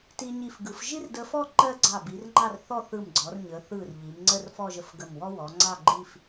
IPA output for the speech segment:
t i˧ ɲ i˧˩ f ɡ ɯ˩˧ f ʒ i˥ r d ə˧ f ɔ˥˧ ǃ ɜ˥˧ ɡ͡ǀ ɑ˧˩ b i˩˧ r ŋ͡ǃ ɑ˥˧ r θ ɔ˥˧ θ ɯ˧˩ m ɡ͡ǀ ɔ˩˧ r ɲ ə˩˧ θ ɯ˧˩ r ʎ i˩˧ m ŋ͡ǀ ə˥˧ r f ɔ˥˧ ʒ ə˧˩ f ɡ ə˧˩ m w ɔ˥ w ɔ˩˧ ŋ͡ǀ ɑ˥˧ ɡ͡ǃ i˥˧ f

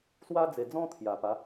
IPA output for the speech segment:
s w a˦ d͡z e˨˩ d͡z ɔ̃˥˧ t̪ʰ j a˨˩ p a˨˦

